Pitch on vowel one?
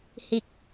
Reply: low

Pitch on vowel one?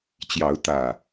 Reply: rising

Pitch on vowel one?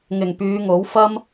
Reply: low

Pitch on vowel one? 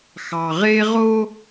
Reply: low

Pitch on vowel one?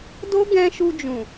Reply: high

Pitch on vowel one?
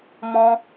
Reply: high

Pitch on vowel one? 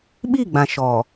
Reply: falling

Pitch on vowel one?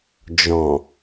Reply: low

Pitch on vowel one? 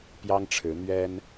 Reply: high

